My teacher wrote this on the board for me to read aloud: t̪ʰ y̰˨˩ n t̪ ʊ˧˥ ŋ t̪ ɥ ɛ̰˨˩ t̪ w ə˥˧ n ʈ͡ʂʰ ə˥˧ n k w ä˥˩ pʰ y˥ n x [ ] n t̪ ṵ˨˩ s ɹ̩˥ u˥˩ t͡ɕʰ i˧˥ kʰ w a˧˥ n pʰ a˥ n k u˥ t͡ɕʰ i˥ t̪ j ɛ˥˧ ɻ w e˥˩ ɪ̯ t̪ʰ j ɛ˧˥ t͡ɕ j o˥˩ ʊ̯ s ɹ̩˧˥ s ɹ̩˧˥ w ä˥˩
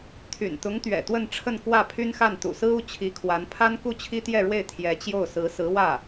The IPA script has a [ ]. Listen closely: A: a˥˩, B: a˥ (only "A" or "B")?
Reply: A